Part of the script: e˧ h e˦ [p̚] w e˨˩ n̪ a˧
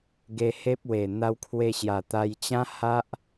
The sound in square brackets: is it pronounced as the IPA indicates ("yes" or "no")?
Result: yes